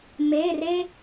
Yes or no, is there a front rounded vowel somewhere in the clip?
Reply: no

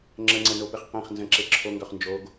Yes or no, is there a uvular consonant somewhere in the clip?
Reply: yes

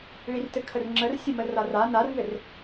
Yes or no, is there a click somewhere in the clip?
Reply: yes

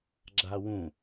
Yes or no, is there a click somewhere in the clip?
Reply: yes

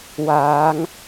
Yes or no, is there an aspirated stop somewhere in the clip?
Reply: no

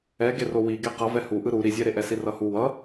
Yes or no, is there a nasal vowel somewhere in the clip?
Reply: no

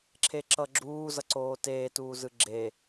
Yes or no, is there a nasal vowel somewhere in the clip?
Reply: no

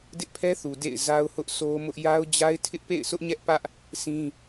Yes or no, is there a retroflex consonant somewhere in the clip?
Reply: no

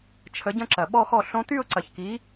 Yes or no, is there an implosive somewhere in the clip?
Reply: yes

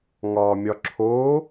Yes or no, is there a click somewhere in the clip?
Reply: yes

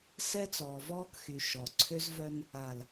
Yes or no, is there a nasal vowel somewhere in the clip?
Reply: no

